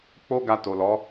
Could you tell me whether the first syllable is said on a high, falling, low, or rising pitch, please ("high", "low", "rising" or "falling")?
high